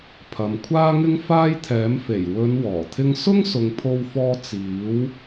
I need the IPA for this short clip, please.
pʰ ɐ˨ m kʷʰ aː˥ ŋ ɪ˥ ŋ f aː˥ j t̪ʰ ɛː˨˥ m f e˨˩ j w ɵ˨˧ n w ɔː˨˩ t̪ʰ ɪ˥ ŋ s ʊ˥ ŋ s ʊ˨ ŋ pʰ o˧ w f ɔː˧ t͡s iː˨˥ w

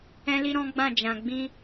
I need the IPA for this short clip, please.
ɛ̃˦ l i˦ ɾ ɔ̃˦ ɡ͡b ã˦˨ d͡ʒ ã˨ ɡ͡b ĩ˧

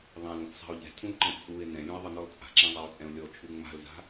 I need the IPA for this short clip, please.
ðˤ ɛ̃ l ũ f sˤ a̤ o̯ ʎ ɛ̤ tʰ ũ l ǃ ɛ̃ t͡sʼ u e̯ n ɛ̃ lʲ ũ e̯ ðˤ ɘ n ɔ l t͡sʼ a̤ ǁ ɛ̃ zˤ a o̯ t͡sʼ ɛ̃ o̯ lʲ ɔ t͡ʃʰ u ŋ͡m a̤ l z a̤

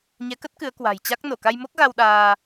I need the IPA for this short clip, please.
ɲ ɛ˨˦ k ə˦˥ t̚ k ɨ˨˦ ə̯ k w a̤˨˩ j t͡ɕ a˦˥ k̚ n o˧˩ k a˧ j m o˦˥ k̚ ɣ a˧ w ɗ aː˧

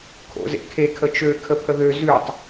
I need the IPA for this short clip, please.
kʰ o̰ z ḛ kʰ e kʰ ə t͡ʃ ø kʰ ə pʰ ə ð ø z ʉ tˤ

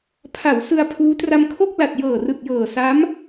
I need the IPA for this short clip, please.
pʰ a˩˦ w s ɯ˧ a̯ pʰ uː˦˥ t r a˧ m kʰ o˥˩ k̚ l a˨˩ t̚ j ɤː˨˩ r ɯ˨˩ k̚ j ɤː˨˩ s a˦˥ m

